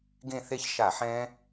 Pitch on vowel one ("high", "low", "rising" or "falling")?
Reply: falling